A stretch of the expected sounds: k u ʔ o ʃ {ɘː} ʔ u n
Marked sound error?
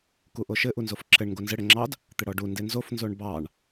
yes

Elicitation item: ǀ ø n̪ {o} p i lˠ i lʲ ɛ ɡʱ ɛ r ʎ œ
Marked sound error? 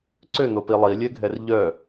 no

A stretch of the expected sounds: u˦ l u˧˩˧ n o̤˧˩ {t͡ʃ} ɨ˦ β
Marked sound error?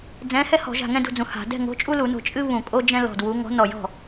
yes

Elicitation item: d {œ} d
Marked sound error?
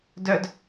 no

